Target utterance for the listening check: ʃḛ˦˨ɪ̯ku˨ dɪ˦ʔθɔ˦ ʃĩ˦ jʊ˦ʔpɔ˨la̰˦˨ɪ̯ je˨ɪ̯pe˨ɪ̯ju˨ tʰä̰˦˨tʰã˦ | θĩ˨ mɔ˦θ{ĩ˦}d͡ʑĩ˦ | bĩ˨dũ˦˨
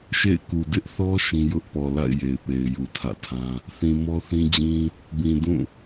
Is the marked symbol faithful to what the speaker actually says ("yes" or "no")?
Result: yes